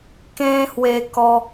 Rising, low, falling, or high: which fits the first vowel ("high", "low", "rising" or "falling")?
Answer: high